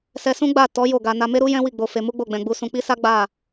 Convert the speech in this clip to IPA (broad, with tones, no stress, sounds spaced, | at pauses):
s ɛ˧ s ũ˦ ɡ͡b a˦˨ t ɔ˨˦ j o˦˨ ɡ a˧ n a˧ m e˦ ɾ u˦ j ɛ̃˦ w i˦˨ ɡ͡b o˧ f e˧ m u˦ ɡ͡b o˦˨ ɡ͡b ɛ̃˧ ɡ͡b u˧ s ũ˧ k͡p i˦ s a˦ ɡ͡b a˦˨